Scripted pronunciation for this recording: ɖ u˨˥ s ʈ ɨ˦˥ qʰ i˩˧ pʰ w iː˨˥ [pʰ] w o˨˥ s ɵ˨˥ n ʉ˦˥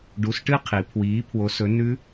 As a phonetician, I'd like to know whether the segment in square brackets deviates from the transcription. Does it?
no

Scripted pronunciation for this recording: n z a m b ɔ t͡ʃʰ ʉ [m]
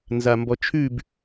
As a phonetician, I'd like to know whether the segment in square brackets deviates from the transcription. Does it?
yes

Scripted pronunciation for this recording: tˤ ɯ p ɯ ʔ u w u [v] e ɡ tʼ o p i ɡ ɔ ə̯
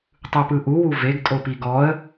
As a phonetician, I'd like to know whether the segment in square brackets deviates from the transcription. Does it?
no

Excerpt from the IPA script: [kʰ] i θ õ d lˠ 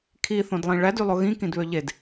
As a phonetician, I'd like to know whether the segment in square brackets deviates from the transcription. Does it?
no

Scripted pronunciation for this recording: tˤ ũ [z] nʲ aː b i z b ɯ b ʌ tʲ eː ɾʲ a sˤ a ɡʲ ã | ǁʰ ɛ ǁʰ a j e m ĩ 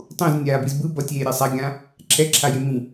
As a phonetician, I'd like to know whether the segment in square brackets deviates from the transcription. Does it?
no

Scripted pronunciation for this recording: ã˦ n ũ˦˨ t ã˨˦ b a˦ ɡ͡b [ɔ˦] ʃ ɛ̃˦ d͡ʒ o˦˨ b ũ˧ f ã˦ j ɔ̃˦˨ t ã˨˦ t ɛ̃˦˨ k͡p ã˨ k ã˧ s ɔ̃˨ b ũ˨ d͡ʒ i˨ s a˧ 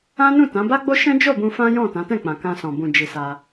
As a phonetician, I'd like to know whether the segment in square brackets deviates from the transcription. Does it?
yes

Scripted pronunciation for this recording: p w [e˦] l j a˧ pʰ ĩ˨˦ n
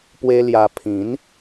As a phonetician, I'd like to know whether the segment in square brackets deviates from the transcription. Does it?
no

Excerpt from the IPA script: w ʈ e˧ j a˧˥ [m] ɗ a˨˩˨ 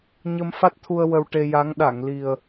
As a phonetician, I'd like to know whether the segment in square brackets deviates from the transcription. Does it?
yes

